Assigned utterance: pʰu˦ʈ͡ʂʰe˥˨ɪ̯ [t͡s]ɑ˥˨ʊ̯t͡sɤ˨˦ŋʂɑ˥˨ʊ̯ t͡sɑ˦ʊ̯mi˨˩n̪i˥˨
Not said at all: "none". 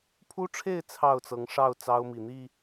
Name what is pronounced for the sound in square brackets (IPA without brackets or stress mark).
t͡sʰ